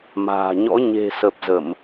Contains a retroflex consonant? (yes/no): no